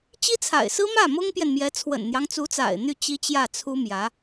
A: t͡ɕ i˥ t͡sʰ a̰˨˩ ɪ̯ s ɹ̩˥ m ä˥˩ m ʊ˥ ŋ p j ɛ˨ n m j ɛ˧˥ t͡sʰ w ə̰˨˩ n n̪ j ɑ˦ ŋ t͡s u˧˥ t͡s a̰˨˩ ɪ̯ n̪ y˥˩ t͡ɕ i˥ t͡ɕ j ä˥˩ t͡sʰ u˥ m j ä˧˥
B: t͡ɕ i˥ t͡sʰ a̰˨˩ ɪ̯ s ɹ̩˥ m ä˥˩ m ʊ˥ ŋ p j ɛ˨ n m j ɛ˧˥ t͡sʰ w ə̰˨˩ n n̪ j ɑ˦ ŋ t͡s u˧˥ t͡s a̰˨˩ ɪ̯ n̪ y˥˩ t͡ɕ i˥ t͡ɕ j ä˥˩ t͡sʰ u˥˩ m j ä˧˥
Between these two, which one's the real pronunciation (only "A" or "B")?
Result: A